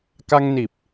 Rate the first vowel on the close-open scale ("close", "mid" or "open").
open